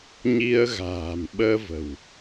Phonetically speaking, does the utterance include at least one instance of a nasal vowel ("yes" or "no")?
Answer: no